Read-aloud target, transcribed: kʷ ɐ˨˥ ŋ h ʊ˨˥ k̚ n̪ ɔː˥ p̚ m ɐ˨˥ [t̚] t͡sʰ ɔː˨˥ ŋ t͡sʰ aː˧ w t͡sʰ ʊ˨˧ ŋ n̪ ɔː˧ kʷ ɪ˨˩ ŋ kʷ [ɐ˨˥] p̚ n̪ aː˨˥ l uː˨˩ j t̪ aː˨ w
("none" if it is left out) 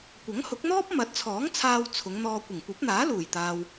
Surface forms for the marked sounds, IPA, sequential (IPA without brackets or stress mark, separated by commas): t̚, ɐ˨˥